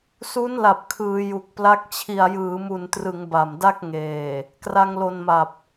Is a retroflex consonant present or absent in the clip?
absent